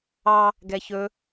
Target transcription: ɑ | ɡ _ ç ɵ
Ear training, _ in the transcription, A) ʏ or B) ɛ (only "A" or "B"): B